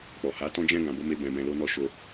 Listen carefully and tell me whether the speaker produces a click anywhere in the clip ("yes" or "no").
no